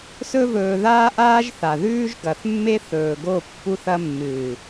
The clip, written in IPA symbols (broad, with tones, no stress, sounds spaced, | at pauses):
s ɵ˦ v ɵː˧ ð aː˦ ʔ aː˦ ʒ θ a˨ ð ʉː˦ ʒ ɡ ɐ˨ θ mː e˦ θ ɵː˨ ɡ o˦˨ pː u˧ θ ɐ˧ mː ɨː˨